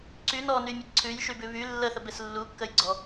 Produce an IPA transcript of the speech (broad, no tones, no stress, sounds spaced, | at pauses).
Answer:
ǀ y n ɔ n y mʲ ə ǀʰ ʉ j ʃ y b ʉ β y lː ə θ ə b e s lː u kː ə j ɡ͡ǀ ɔ